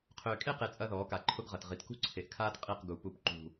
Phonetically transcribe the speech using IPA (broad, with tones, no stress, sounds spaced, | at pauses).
qʰ øː˨ kʼ e˦ q e˨ t͡sʼ ɐ˦ ð ɔː˨˦ k a˨ ǃʰ ʊ˦ ɡ ʁ ɐ˨ t ʁ i˨ t k ṳ˦ ǀʰ e˨ ʔ kʰ aː˦ t qʼ i˦˨ q ɡ u˨ p u˨ p ǃ ṳ˨